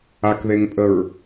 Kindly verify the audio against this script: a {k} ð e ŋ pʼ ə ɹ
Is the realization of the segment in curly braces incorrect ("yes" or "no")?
no